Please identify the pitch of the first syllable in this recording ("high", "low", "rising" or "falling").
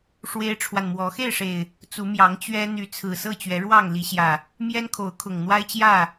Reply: high